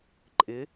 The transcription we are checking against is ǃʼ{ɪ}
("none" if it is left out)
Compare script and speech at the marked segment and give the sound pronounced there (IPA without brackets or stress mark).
ɪ